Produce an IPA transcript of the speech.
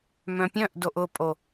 mœ̃pʲœ̃ʔdoʔ ʊpʼo

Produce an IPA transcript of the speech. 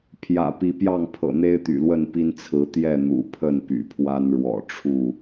pʰjä̰˨˩pi˨˦pjɑ˥˨ŋpʰɤ̰˨˩ n̪e˦ɪ̯t̪y̰˨˩lwə˥˨n pi˦nt͡sʰɹ̩˨˦ t̪jɛ˥˨ n̪ṵ˨˩pʰə˥˨n py̰˨˩pʰwa˦n ɻwɔ̰˨˩ʈ͡ʂʰu˥˨

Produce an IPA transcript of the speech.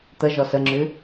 t̪əʒɔ səŋ͡ǁʉ

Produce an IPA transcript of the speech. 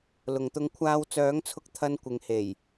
lʊ˨ŋt̪ʊ˧ŋ kʷʰaː˧wt͡sœː˨˥ŋt͡sʰʊ˧k̚ t̪ʰɐ˧nkʷɪ˨ŋ he˨˩j

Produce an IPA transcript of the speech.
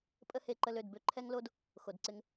pʼə˦he˧ǃə˧l ø˨d bø˦ǃʰɛ˦ŋlo˦d | xo˨dǀɪ˧ŋ

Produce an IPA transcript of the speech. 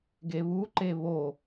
ɡeβuǃe βo

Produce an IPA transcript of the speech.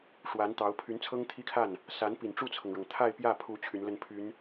ʂwa˧˥nt̪ɑ˧˥ʊ̯ pʰy˧˥nt͡sʰɤ˥ŋ t̪ʰi˥kʰa˥˩n | sa˧˥n pi˨˩nʈ͡ʂu˥˩t͡sʰɤ˩ŋɻɤ˩ŋ t̪ʰa˥˧ɪ̯pjä˥˩pʰu˧˥ t͡ɕʰy˧˥nlə˥˩npʰy˧˥n

